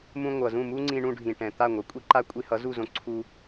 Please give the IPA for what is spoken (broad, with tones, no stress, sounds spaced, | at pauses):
m ũ˧ ŋʷ ʌ˩ z ũ˥˩ m u˥ ŋ͡ǀ ĩ˧ ɳ ũ˧ ɖʱ ĩ˩ ʈ ɛ̃˩ t̪ a˥˩ ŋʷ ʌ˩ kʷʼ i˥ ǃ a˥ kʷʼ i˧ h ʌ˩˥ z u˥˩ z õ˧ ǀʰ u˧